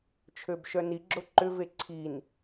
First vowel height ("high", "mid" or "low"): mid